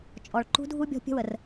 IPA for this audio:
t͡ʃʼ ɔ˨ ɭ ǃ ṳ˦ dʱ u˦ bʲ ɔ̤˦ pʲ ə̤˦ w ə˨ r

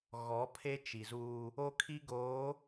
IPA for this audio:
ɣ ɔ˨˦ pʰ e˦ t͡ʃ i˨ z uː˦ | o˦ kʰ i˦ ɡ oː˨˦

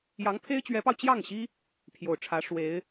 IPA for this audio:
j ɑ˧˥ ŋ pʰ e˥ ɪ̯ t͡ɕ ɥ ɛ˧˥ p ɑ˧ ʊ̯ t͡ɕ j ɑ˥˩ ŋ ɕ i˥ | pʰ j o˨˩ ʊ̯ ʈ͡ʂʰ ä˧˥ ʂ w e˧˥ ɪ̯

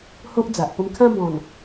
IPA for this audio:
h o˦ ʔ d͡z a˨ ʔ p ə˧ m kʰ ã˦ b ɔ̃˨˩ n

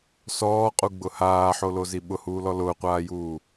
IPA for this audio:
s ɔː qʼ u ɡ͡b ʊ h aː ħ o l o z i ɓ ʊ h uː l ɔ l ʊː qʷ aː j uː

